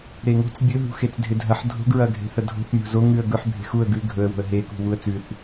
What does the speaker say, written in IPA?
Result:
ɾeŋo̤t͡s bʲɵɦṳ xet͡sdʱedʱɐħ dʱo̤ɡɹɐɡʱe̤ θɐdʱo̤θ mʲo̤zo ŋʉə̯ɡɵħ bʱe̤xuə̯ ɡʉ ɡʱɵə̯wo̤ə̯ ɦekṳ wuə̯t͡sʉθ

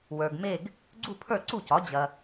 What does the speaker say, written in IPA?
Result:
wə˞˨ɡme˥˨ɡ | ɡ͡ǀu˥˨pʰə˞˥˨ ǀu˥˨cɒ˩˥ d͡ʑɐ˨

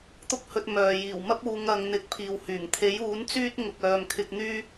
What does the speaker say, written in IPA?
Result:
t̪ʊ˥k̚hɵ˧t̚ mœː˨ jiː˨˩wmɐ˥p̚ uː˨˧ŋ ɐ˨˧ŋn̪ɪ˨˥k̚ pʰiː˨whyː˨˩ŋ t̪ʰe˨˥juː˨˥n t͡syː˥t̚ ŋʊ˨k̚œː˨m kʰɪ˧k̚ n̪yː˥

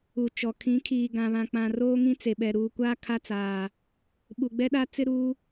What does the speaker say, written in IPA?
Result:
u˨t͡ʃɔ˨ kʰĩ˨˦kʰiː˨ ɡã˨βã˨k͡pã˨ roː˦ŋĩ˦t͡se˨ɓɛ˨ ɾuː˨kʷa˦ kʰa˦t͡saː˨ | ɓu˨ɡ͡bɛ˦ɗa˦ t͡sɪ˦ɾuː˦

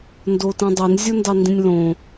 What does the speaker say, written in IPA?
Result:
ndotĩdˤin zʲondɑndĩnʲlõ

